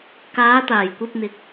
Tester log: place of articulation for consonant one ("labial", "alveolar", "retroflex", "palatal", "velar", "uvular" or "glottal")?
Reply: velar